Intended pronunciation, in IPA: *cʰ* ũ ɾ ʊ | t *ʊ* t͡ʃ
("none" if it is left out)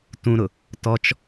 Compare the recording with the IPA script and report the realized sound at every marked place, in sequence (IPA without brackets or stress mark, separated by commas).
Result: t, ɔ